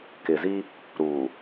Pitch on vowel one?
low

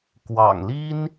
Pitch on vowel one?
low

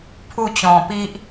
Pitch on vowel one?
falling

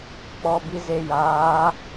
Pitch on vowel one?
low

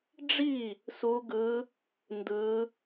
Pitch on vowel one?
falling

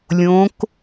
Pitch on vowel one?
rising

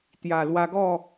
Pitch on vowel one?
low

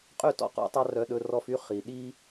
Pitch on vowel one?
falling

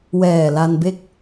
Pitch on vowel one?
low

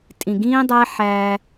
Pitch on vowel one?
low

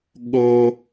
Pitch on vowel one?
high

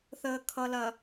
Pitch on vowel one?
low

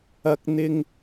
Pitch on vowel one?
high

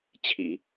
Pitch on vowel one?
low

